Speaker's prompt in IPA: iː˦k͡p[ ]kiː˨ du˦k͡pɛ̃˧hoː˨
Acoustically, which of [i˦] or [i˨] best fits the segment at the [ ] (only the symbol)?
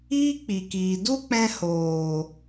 i˨